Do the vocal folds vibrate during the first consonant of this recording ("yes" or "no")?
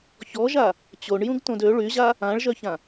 no